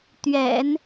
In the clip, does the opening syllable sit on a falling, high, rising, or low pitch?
low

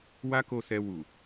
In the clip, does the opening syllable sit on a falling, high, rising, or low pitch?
high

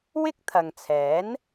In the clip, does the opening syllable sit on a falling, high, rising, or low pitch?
high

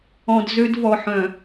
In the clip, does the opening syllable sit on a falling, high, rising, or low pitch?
low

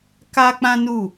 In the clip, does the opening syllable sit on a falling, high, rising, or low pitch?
high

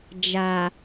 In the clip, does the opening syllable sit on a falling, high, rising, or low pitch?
low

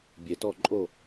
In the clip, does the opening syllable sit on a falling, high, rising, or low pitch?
low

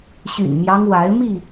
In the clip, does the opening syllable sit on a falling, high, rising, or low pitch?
low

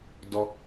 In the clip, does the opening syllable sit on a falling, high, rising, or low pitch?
high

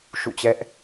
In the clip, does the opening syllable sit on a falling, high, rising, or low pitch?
falling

